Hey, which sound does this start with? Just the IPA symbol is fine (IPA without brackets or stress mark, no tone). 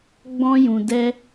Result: ɡ͡b